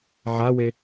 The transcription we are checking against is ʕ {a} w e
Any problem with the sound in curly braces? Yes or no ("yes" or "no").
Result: no